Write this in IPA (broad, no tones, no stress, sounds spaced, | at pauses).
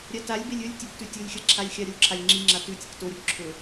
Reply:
ɾʲ a t a lʲ b e lʲ ɵ lʲ tʲ ɵ b t ʉ tʲ u lʲ xʲ ɐ ǁʰ a lʲ xʲ a ɾʲ o ǁʰ a lʲ ŋ͡ǁ i ŋ͡ǁ a t ʉ tʲ ɐ k t o ɾʲ o b ǁʰ ɵ